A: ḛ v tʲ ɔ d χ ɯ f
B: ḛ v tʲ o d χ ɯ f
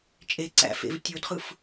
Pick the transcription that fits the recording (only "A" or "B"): B